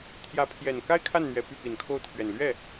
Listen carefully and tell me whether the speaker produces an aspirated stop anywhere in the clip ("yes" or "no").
yes